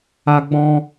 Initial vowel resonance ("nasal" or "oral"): oral